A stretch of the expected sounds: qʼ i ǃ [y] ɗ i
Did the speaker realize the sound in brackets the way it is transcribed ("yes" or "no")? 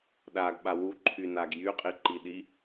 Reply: no